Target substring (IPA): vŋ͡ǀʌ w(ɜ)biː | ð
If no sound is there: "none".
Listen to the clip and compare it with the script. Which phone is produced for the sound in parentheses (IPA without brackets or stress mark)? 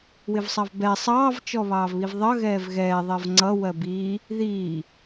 ɜ